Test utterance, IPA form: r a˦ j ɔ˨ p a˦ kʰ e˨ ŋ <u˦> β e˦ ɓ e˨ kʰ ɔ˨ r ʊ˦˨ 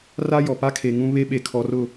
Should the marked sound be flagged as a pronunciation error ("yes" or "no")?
yes